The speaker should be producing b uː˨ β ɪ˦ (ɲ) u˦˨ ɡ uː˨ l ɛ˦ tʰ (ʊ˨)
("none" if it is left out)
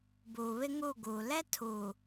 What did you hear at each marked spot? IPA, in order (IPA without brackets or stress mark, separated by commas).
ŋ, u˨